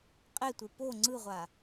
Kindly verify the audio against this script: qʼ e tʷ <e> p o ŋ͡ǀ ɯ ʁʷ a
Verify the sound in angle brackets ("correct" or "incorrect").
correct